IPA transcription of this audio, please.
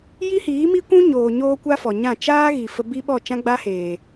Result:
j i˦ h iː˨˦ m i˦ kʷ ũ˦ ɲ oː˨ ɲ oː˦ kʷ a˦ f ɔ˨ ɲ ã˦˨ t͡ʃ aː˦ ɣ i˨ f ə˧ b i˦ ɓ ɔ˦˨ t͡ʃ ã˦ ɡ͡b a˦ h eː˨

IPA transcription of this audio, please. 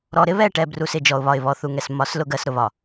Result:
ɾ ɔ˨ ɾ ɪ˦ β ɛ˦˨ ʈ ɛ˨ b r u˨ s ɪ˦˨ d͡ʒ ɔ˨ ʊ̯ β ɒ˨ ɪ̯ β ɔ˨ θ u˨ ŋ ɛ˨ s m ɒ˨˦ s l ʊ˦ ɡ ɜ˨˦ s ɾ ʊ˨ β ɒ˨

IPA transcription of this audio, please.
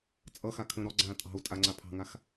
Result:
t͡sʼ ʌ x a kʰ ə̃ː ɾ ɔ ɡ͡ǀ ãː tʼ ɑ̤ u̯ tʼ a ŋ͡ǀ a pʰ ɑ̤ ŋ a x

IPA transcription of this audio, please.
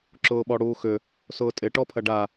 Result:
ǁ ʊː ɓ ɔ ɽ uː x ʏ | s ʊː tʼ ɪ ʈ ɔ pʰ ɐ ɖ a

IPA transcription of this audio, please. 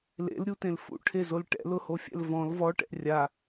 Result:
l ḛ l ɾʲ u t ẽ l f ṵ ʈʰ e z o l ʈ ɛ̰ l ʊ h o fʲ ɛ̰ l v ɔ̃ l v ɔ ʈ ɛ̰ rʲ a

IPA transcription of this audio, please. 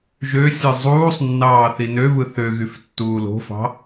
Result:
ʒ ø sʲ ɯ zˤ uː sˤ nː ɑː θ i n ø v ɯ θ ø ɣ y f tː uː l o̤ f ɑ̤

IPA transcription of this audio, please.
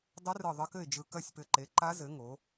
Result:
dˤ ɘ˧˥ r ɯ˧˩ ðˤ ɘ˧˥ k ɘ˥˩ ɪ̯ d͡ʒ ɯ˧˩ k ɐ˥˩ sʲ p ɘ˧˩ ǃ e˩˥ ǃ a˧˥ z ɘ˩˥ ŋ o˩˥

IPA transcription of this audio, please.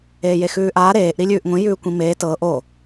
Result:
eː j e x ʉː ʔ aː ɾ eː ʔ ɾ i lʲ ʉː ʔ ŋʷ ĩ j ʉː kʷ ĩ m eː t ɤː ʔ o

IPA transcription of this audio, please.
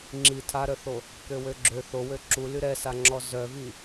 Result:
ŋ͡ǁ i tʰ a ɾ œ θ o | k ø w ø ɡ͡ǁ ø θ o w ø ǁ u l y ɾ ɛ s a ŋ͡ǁ ɔ z œ v i

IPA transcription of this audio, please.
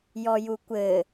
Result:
j ɔ j u kʷ ɘ

